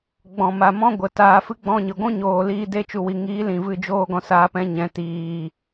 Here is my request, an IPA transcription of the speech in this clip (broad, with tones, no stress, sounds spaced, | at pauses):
ɡ͡b ɔ̃˨ m a˨ m ɔ̃˦ ɡʷ ə˨ t aː˧ f ɨ˦ ɡ͡b ɔ̃˦ ɲ ɨ˨ ɡʷ ũ˦ ɲ oː˨ l iː˧ d e˦˨ t͡ʃ u˨ w i˨ ŋ iː˨˦ l ĩ˨ v ɨ˦˨ d͡ʒ oː˦ ɡ ɔ̃˧ s aː˧ p ɛ̃˧ ɲ ɛ̃˨ t iː˨